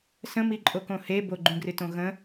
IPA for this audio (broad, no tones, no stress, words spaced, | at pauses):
sə̃miǃʼokõ he boɡ͡ǃũɡrɨtõ ɣə̃